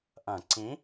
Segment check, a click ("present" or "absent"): present